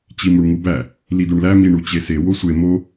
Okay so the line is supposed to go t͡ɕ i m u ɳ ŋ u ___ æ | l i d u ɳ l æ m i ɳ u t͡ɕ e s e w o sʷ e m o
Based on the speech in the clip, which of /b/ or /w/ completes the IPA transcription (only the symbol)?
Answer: b